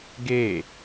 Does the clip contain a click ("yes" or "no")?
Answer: no